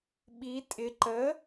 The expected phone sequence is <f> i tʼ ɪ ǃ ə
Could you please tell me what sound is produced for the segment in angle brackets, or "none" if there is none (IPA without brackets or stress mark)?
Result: ɓ